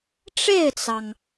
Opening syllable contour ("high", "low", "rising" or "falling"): falling